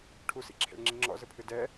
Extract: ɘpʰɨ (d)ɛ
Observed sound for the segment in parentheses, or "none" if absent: d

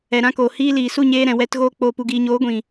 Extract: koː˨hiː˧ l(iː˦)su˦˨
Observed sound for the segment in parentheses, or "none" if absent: iː˨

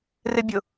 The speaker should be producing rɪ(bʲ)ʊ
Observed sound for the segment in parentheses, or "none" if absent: bʲ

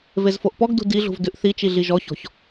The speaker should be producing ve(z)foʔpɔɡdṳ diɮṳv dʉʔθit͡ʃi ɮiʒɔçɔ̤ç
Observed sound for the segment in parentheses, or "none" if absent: z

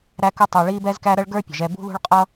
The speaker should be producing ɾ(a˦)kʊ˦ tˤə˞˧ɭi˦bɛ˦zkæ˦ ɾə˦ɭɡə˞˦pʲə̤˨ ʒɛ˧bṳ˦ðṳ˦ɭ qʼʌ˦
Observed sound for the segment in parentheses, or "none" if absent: æ˦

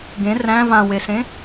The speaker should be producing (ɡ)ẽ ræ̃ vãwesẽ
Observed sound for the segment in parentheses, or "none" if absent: ɡ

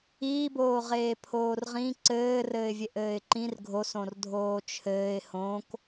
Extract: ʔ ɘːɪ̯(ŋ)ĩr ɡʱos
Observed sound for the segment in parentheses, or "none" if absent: ǃ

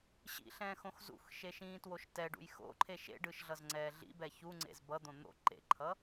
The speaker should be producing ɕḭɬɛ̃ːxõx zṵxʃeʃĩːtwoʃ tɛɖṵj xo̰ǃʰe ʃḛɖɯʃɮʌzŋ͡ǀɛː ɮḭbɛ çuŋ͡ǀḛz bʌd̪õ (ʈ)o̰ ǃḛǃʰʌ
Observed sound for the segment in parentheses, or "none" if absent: n̪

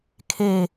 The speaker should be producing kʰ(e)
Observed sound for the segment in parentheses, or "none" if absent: e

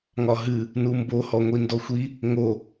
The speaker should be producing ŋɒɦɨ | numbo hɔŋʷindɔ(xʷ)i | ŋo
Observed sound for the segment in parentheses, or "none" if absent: xʷ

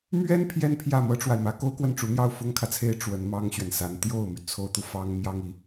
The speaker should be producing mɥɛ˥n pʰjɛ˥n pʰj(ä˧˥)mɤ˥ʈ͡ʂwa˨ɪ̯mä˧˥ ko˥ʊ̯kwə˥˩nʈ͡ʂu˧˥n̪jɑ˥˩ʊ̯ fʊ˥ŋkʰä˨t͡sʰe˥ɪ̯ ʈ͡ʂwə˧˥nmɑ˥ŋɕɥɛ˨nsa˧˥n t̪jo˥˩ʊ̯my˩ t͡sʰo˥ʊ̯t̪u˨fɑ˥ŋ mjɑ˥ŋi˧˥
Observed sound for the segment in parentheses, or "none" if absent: ä˥˩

